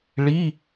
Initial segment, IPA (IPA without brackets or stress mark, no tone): ɭ